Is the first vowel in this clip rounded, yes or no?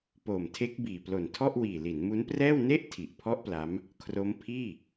yes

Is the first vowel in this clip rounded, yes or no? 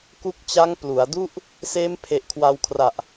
yes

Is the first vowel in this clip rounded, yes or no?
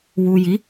yes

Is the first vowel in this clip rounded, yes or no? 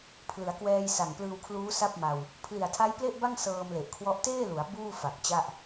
no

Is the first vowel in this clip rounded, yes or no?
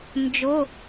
yes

